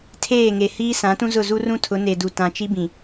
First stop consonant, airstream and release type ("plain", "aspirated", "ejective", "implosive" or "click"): aspirated